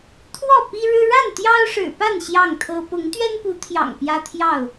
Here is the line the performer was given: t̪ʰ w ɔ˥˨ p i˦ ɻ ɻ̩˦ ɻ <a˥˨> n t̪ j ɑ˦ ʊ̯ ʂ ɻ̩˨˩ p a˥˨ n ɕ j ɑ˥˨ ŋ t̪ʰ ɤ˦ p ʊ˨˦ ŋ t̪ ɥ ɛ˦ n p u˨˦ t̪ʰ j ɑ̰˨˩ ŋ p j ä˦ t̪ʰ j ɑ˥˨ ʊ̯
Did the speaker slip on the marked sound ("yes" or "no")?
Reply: no